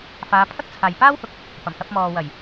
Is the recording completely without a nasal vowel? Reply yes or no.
yes